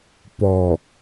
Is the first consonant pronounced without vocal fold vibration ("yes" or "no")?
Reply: yes